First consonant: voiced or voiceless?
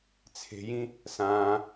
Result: voiceless